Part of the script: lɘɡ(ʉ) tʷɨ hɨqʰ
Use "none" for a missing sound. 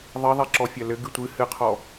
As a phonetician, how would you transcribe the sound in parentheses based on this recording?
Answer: ɨ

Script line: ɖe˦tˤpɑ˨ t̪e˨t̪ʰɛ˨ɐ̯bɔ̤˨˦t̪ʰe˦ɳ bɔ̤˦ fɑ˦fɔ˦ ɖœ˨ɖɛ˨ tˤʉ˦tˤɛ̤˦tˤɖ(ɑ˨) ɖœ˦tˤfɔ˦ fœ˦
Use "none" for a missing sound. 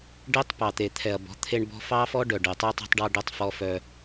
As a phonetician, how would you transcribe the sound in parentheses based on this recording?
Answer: ɑ˦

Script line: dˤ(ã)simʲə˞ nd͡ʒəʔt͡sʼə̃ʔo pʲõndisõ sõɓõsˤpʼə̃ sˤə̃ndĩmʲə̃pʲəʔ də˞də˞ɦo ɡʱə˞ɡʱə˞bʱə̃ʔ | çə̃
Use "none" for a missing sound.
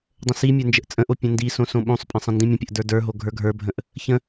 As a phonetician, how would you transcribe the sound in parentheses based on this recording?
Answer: ə̃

